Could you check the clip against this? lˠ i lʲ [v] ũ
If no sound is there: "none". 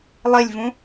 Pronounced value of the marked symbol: v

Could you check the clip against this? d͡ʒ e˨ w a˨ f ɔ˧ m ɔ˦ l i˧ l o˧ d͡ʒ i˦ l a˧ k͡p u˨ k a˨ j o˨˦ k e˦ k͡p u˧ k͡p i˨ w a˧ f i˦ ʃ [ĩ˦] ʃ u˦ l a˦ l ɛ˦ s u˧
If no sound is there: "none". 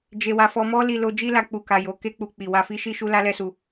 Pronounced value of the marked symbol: i˦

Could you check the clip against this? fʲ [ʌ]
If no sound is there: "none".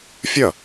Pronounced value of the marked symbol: ʌ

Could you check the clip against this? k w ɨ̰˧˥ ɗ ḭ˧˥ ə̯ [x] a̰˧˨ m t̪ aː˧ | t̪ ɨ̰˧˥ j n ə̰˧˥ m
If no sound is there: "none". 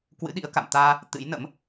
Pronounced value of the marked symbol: k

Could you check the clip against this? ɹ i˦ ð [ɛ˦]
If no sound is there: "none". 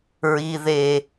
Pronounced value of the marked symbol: e˦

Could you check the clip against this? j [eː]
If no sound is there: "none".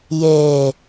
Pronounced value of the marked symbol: eː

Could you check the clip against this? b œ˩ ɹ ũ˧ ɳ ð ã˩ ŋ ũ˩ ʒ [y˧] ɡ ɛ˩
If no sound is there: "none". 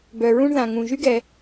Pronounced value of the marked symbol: y˧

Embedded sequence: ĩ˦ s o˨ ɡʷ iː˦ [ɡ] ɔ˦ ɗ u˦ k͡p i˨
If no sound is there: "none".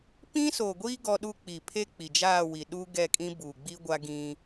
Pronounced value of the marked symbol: ɡ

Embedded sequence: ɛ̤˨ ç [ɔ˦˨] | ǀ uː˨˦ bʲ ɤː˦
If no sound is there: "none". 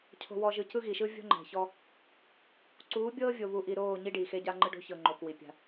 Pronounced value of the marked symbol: ɔ˦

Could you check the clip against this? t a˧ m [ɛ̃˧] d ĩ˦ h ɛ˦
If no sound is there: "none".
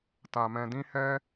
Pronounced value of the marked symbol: ɛ̃˧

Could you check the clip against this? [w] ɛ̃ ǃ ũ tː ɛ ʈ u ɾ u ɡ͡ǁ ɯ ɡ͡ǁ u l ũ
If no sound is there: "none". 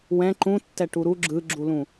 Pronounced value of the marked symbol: w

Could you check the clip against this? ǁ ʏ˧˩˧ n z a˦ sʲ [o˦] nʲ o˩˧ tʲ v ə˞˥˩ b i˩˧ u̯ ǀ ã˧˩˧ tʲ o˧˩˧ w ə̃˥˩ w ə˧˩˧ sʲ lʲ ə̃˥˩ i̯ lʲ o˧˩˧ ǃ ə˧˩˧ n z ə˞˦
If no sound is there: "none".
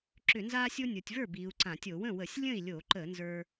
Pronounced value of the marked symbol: o˦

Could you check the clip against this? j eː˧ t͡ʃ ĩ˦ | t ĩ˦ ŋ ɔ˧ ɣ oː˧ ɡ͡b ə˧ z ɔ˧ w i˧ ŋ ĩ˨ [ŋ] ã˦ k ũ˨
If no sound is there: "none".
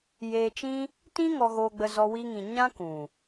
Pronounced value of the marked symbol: ɲ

